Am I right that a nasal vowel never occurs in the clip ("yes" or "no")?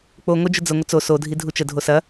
yes